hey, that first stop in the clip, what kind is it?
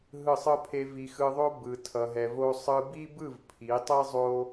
aspirated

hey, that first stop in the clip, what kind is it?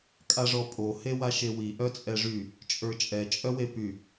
ejective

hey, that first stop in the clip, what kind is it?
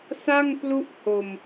plain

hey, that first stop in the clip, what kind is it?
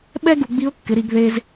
implosive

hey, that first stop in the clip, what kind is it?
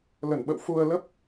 implosive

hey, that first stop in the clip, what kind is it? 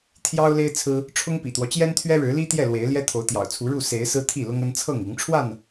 aspirated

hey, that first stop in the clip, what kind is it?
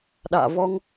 implosive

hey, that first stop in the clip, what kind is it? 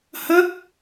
plain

